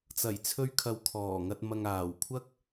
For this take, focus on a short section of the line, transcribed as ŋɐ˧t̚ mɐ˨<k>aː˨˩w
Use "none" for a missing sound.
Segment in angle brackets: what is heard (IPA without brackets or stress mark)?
ŋ